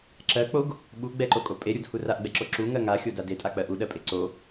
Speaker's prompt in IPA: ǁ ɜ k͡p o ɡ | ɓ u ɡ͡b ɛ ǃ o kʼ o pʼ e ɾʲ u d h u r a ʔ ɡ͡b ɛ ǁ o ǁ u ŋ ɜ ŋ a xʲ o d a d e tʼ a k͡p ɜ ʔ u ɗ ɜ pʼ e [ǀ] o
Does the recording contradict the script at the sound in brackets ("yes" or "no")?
no